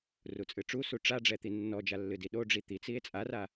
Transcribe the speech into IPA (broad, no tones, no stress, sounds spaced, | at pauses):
r u t͡sʼ ɨ ʈ͡ʂ u s u ʈ͡ʂ a ɖ͡ʐ ɛ t̪ i nː ɔ d͡ʒ a lː ɨ d i ɗ o ɖ͡ʐ i t̪ i t͡s i e̯ t͡sʼ a r a